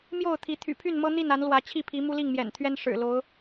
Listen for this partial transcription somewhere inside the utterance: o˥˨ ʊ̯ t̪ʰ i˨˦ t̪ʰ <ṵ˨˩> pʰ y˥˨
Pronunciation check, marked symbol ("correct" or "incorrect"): incorrect